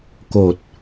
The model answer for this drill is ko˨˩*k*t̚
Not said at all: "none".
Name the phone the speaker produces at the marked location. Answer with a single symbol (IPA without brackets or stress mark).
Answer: none